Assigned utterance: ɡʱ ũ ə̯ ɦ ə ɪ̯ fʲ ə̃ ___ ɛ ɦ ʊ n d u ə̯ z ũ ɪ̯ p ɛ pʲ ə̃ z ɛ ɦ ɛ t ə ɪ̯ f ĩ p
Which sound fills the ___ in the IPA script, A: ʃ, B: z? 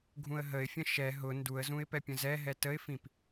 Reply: A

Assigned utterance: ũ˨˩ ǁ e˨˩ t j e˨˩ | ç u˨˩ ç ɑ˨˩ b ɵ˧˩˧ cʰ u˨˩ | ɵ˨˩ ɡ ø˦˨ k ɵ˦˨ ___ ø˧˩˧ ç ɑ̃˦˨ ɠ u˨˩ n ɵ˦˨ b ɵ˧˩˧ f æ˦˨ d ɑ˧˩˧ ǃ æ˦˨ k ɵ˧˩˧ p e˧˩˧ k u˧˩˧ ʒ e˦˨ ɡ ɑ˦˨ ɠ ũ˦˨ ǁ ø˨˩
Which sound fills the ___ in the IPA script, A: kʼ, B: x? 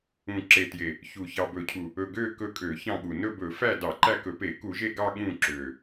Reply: A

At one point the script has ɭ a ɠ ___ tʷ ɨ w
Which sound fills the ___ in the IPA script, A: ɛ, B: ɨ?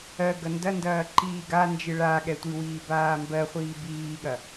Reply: A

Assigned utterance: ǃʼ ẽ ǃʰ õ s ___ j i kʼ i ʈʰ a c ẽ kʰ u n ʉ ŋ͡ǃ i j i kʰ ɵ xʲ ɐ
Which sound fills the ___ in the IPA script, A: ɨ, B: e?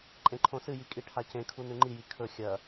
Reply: A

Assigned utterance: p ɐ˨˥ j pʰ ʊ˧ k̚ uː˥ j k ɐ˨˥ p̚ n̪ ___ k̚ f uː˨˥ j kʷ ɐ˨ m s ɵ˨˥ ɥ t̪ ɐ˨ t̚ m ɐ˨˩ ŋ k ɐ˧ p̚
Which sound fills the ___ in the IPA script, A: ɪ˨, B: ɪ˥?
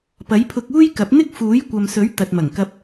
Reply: B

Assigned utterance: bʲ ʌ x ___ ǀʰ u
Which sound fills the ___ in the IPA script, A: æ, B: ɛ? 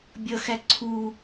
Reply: A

